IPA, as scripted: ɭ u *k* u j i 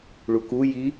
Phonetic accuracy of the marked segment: correct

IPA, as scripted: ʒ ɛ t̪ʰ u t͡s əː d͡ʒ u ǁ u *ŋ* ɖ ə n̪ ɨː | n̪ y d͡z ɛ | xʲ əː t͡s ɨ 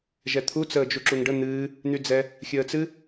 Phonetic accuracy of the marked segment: correct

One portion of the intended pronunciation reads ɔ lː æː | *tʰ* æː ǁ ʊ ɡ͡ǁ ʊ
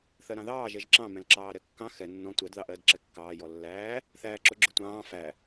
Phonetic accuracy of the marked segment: incorrect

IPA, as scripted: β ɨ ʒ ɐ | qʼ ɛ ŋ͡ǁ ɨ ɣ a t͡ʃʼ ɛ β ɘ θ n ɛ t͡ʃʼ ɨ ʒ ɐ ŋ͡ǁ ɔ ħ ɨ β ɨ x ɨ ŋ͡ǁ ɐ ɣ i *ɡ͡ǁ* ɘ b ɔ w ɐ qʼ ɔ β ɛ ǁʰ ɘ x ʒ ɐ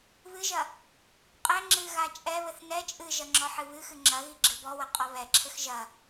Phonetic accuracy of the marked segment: correct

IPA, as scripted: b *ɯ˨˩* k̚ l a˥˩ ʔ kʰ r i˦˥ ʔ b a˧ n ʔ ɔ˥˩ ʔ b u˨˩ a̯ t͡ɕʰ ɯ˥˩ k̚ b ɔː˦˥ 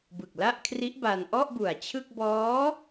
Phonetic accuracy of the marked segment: correct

